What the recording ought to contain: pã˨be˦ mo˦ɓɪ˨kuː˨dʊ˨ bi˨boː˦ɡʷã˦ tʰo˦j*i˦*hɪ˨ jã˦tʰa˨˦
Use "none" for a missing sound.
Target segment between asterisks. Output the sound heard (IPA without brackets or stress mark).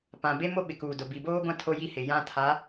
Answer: i˦